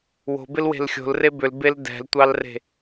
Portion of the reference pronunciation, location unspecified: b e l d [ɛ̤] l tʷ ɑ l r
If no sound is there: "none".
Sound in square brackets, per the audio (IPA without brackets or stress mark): ɛ̤